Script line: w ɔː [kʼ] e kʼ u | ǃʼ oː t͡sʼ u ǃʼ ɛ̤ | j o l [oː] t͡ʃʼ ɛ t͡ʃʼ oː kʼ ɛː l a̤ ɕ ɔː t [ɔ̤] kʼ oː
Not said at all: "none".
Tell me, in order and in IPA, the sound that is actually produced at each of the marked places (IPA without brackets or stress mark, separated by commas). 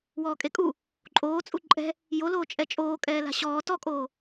kʼ, oː, ɔ